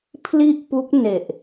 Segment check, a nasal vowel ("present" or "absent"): absent